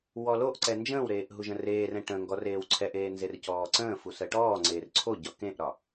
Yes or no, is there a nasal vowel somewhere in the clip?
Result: yes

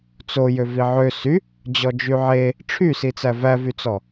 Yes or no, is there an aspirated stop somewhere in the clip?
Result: yes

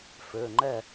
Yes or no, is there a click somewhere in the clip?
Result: yes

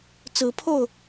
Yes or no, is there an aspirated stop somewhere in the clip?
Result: yes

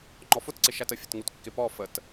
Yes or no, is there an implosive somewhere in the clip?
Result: no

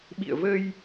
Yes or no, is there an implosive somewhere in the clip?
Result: yes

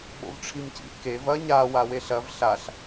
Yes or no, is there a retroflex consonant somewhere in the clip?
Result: yes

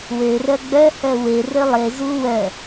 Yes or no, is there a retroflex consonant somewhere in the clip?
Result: no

